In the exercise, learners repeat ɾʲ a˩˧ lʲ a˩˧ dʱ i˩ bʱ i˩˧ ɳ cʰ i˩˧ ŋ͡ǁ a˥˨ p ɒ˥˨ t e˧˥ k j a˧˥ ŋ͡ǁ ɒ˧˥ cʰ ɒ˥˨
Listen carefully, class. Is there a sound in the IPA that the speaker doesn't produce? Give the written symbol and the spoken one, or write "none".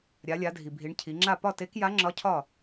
none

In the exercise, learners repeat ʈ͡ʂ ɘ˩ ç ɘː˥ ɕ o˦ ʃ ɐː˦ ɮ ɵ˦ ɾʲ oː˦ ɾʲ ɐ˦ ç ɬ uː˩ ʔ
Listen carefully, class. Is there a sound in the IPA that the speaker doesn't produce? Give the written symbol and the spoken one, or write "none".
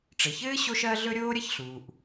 none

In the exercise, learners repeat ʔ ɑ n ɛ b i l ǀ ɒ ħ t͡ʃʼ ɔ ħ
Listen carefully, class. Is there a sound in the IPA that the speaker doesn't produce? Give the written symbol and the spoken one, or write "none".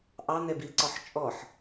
none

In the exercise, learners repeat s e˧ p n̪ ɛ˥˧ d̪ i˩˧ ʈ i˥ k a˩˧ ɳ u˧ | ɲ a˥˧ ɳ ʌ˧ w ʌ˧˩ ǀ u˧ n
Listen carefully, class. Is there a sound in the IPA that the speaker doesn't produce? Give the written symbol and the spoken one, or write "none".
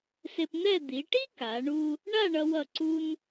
ɲ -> ɳ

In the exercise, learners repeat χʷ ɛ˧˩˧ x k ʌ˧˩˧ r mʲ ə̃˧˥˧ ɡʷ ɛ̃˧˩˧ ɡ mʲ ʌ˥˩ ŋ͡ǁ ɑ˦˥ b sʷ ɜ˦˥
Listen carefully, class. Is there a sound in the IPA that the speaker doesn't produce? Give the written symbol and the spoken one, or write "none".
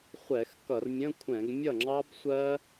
ɡʷ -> kʷʰ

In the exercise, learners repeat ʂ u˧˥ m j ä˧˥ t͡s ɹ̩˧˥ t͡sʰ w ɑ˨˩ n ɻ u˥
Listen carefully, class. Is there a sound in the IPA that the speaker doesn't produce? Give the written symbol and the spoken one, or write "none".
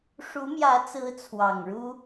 n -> ŋ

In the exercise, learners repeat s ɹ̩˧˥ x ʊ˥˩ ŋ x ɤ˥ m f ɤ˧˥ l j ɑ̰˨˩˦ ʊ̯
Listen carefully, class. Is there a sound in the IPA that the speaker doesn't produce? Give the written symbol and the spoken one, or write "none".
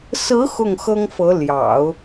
m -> ŋ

